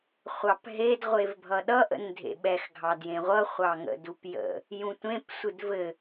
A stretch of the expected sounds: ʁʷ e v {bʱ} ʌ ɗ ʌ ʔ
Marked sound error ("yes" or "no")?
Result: no